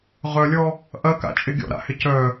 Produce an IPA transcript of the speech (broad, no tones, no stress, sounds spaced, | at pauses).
ʁ œ lʲ ɔ | ʔ ɐ k a̰ t͡ʃʼ ɪ ɡʲ ɔ̰ ɾ a̰ h ɪ c œ